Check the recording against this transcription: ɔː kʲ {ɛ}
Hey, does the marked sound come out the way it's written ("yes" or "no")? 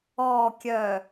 no